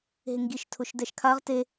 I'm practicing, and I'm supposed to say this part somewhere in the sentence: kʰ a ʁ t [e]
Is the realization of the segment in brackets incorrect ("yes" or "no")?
no